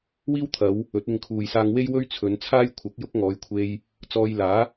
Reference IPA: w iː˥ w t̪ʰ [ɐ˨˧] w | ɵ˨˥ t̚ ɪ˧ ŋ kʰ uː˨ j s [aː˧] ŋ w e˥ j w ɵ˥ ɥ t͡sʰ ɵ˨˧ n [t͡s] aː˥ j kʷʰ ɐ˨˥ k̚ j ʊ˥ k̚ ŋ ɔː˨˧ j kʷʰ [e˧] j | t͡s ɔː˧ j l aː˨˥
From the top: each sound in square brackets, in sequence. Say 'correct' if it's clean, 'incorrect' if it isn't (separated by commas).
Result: correct, correct, incorrect, correct